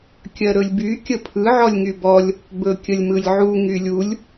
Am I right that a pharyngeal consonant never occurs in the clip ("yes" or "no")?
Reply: no